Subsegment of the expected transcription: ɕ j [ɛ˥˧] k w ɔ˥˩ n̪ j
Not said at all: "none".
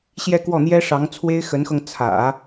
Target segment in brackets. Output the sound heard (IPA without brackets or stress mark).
ɛ˥˧